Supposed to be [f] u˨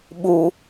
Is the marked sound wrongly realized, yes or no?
yes